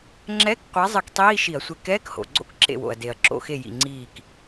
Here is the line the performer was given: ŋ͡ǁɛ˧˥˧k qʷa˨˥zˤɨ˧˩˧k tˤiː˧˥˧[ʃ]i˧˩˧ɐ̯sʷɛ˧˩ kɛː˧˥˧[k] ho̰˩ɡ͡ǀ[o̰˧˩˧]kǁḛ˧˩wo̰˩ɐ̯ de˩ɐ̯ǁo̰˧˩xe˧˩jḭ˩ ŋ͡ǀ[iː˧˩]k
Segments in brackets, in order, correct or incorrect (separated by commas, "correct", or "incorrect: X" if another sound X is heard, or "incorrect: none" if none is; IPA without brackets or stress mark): correct, correct, incorrect: o̰˥˧, correct